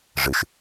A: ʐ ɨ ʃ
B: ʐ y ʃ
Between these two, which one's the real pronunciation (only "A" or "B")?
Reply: A